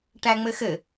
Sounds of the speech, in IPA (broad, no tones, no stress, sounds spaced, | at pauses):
ʈ æ ŋ͡m ɘ x ɘ